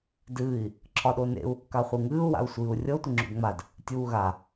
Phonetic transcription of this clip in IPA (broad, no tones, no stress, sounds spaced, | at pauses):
d ɨː i̯ | ǁʰ ɒ ɗ o n ḛ u̯ | k a χʷ ɨ ŋ ɨː u̯ w a̰ u̯ sʷ ɨː u̯ rʲ ɤ tʷ i ŋ͡ǁ ṵ d ŋ͡m a d | tʲ uː ɣ a